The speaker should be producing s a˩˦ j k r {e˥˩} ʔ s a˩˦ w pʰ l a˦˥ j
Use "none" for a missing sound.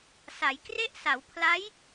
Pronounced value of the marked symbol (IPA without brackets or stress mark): e˥˩